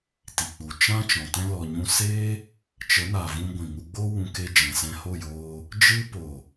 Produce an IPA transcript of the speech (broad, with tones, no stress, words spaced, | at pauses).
ti˨k͡pu˨ t͡ʃã˦ t͡ʃɔ̃˨tɛ̃˦ lɔ˧ɲũ˦ seː˦ | t͡ʃə˨˦na˨vũ˧ ɡʷĩ˨ŋu˧ɡ͡bo˦ wũ˧ke˧ d͡ʒɛ̃˨sɛ̃˧ho˦˨joː˧ | d͡ʒɨ˦ poː˨